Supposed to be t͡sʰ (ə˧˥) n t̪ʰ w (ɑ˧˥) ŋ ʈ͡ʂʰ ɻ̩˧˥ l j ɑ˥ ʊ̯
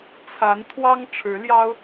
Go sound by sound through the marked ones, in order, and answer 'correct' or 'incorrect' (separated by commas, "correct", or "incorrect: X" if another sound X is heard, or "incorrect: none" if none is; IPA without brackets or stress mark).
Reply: incorrect: a˧˥, incorrect: ɑ˥